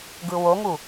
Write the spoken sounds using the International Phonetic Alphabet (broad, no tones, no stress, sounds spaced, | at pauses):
ɡ ɯ w o ŋ u